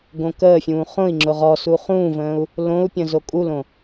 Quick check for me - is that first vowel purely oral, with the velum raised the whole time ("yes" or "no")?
no